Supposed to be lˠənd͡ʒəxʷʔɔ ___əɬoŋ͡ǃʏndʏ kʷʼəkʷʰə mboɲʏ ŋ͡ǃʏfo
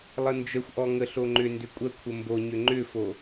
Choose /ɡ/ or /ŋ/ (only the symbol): ŋ